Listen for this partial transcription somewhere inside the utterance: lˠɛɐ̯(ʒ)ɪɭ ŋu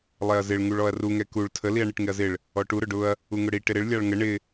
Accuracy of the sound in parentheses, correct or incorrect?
incorrect